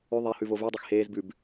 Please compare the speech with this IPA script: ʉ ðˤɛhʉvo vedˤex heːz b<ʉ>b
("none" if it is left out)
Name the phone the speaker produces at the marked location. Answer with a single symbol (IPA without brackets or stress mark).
ʉ